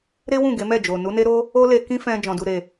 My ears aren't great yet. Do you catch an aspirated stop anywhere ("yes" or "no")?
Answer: no